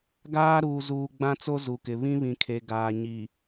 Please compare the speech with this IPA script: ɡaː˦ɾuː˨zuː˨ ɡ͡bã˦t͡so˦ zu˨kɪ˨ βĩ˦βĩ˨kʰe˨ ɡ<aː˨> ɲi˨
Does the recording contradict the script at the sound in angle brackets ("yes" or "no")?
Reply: no